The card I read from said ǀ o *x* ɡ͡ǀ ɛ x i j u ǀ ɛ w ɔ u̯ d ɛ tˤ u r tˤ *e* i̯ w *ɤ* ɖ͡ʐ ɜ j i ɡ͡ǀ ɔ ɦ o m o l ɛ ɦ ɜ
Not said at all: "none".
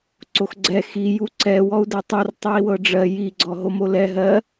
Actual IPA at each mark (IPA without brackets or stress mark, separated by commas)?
x, e, ɤ